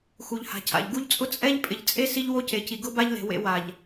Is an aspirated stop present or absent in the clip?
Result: present